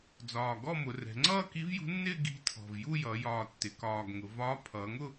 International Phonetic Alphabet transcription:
d͡z ɒː˨˩ ɡ ɔ˥˧ m ʊ˩˧ r ɛ̤˩˧ ŋ͡ǀ ʌː˥˧ k i˧˥ v j ṳ˧˥ nː ɪː˥˧ ɡ i̤˧˥ tʰ ɔ̤˨˩ v j u˥˧ j ʌ˩˧ j ɒː˨˩ tː ɪ˩˧ k ɒː˨˩ ɡ ŋ ʊ˩˧ v ɒː˧˥ pʰ ʌː˩˧ ŋ ʊ˥˧

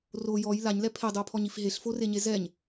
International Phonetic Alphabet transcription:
r o j ɔ j l a ɲ l ɛ pʰ e dˤ ɯ o̯ pʰ ɔ ɲ i f ɦ e ɬ f o r e ɲ e z ɛ ɲ

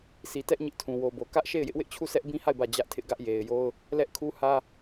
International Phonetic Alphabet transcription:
s i˨ t ɛ˦ ʔ ɲ ɪ˦ ʔ tʰ ũ˨ w o˨ b o˨ k ä˦ ʔ ʃ e˦˨ ɪ̯ j ɪ˦ ʔ w ɪ˦ ʔ t͡ɕʰ u˦˨ s ɛ˦ ʔ b ĩ˦ h a˦˨ ɪ̯ b ä˦˨ d͡ʑ ä˦ ʔ tʰ ɪ˦ ʔ ɡ ä˦ ʔ j e˨ ɪ̯ j o˦ ʊ̯ | l ɛ˦ ʔ kʰ u˦ h ä˦

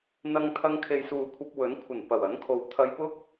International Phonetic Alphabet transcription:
n̪ ɐ˧ ŋ t̪ʰ ɐ˧ ŋ kʰ e˨ j s uː˨ kʷʰ ɐ˧ p̚ w ɵ˨˥ n kʷʰ ɐ˨˩ n p ɐ˨˩ w ɐ˨˥ n kʰ o˨˧ w t̪ʰ ɐ˧ j p ʊ˥ k̚

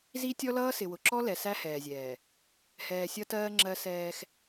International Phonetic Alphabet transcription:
z i˦ tʲ ɔ˦ l ʌː˦ s ɪ˨ w ʊ˨ ǁ ɔ˦ l ɛ˨ s æ˦ h ɛː˨ zʲ ɛː˨ | h ɛː˨ sʲ ʌ˦ t ɜː˦ ŋ͡ǁ ɜ˦ s ɛː˦ x

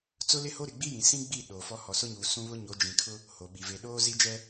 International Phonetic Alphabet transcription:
t͡s ʊ˦ l ɪ˦ h o˦ ɾ ɪ˨ ɡ͡b i˦ j ĩ˨ s ĩ˦ ɡ͡b i˦˨ ɗ oː˨ f ɔ˦ h ɔ˨ s ʊ˦ ɲ uː˨ s ũ˦ β ʊ˦ ɲ o˨˦ d͡ʒ ĩ˨ kʰ ʊ˦ | h o˨ ɓ i˨ v e˨ ɗ oː˦ z i˦ d͡ʒ ɛ˦

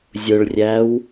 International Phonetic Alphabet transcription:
zʲ ʊ ɭ rʲ æ w

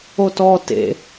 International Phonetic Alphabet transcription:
o t ɔ t ḛ

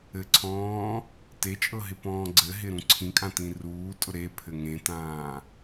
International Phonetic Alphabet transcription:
ɘ ǀʰ ɔ̃ː | t e t͡ʃʼ ɤ ɦ ɪ p ɔ̃ː ɡ͡ǀ ɘ ɦ ɪ ɾ ũ ǀʰ ĩ kʼ ã t ĩ r uː tʼ ʊ ɾ e pʰ ɘ ŋ ẽ t ãː

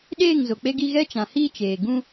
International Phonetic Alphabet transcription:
ɗ eː˦˨ ŋ z o˨ k͡p e˦ ɡ i˦ ɣ ɛ˦ t͡ʃ ã˨ h iː˦ t͡ʃ eː˨ ɡ ũ˦

